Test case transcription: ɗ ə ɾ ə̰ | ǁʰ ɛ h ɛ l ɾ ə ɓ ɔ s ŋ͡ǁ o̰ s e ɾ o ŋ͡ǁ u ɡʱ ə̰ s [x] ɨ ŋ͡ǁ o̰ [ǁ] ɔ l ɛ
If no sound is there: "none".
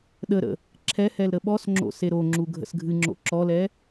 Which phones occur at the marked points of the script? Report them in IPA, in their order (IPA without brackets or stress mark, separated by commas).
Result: ɡʱ, ǁ